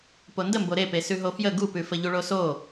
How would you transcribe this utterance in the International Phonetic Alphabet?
pondəmbo ɾepe sʉɦofjə ɡupʉfə ʎuɭoso

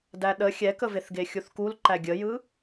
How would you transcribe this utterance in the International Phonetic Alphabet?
dæɗə xʲɛkəveθ ɡexʲuθkul ǃæɡʲəjɯ

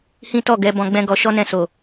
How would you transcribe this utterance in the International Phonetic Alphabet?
hĩ˦tɔ˦˨ɡɛ˧ bɔ̃˧ɡ͡bɛ̃˦ɡɔ˧ ʃɔ˦nɛ̃˧so˨

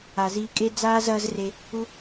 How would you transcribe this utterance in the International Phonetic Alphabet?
a˨ziː˧kʼe˦ d͡zaː˦zɐː˦z re˧ | u˦

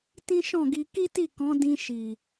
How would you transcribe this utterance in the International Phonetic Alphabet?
tĩ˦ʃɔ̃˦˨ɡi˧ ki˦ti˦˨kɔ̃˨˦ dĩ˧ ʃi˨

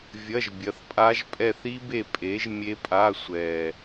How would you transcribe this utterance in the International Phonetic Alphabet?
vʲɐ˧˥˧ʒbʲɐ˨˥θpʼa˦˥ʒ pʼɛ˦˨θi˦˥be˦˨ pʼe˨˥ʒ mʲe˦˥pʼa˧˥˧ sʷɛ˨˩

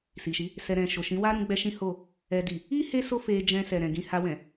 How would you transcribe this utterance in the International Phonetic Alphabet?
si˨ʃi˨˦ | sɛ˨ɾɛ̃˨ʃo˨ ʃĩ˨˦wa˦ ɾũ˦ɡ͡bɛ˦ʃĩ˦ho˦˨ | ɛ˨di˨ | i˦ he˦so˦ fe˧ d͡ʒɛ̃˧ sɛ˨ɾɛ̃˨ɡĩ˧ ha˧wɛ̃˨

